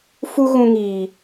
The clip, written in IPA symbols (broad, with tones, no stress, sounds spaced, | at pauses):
f u˦ ɣ ũ˧ ŋ iː˨